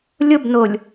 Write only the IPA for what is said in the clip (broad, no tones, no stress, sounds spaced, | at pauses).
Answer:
lʲ ʊ b n o lʲ